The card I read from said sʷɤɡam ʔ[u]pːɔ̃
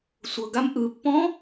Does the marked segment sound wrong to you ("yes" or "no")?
yes